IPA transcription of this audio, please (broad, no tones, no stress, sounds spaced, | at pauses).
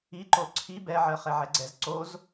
i ǃ o ǀʰ i b ɛ ʕ ɜ χ ɛ ʕ ɛ ɡ͡ǀ ɛ z ǀ o z